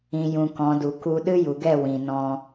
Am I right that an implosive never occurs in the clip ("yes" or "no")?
no